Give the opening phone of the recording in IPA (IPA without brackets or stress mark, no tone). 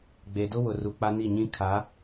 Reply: ɡ͡b